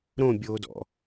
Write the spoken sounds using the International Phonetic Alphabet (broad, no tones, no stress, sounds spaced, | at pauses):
ɾ õ bʲ oː d ɔ̰